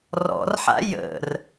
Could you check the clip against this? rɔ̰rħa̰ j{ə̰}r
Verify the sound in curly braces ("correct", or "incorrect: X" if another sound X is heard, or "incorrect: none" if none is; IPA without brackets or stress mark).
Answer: correct